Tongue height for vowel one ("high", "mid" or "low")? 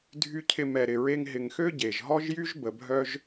high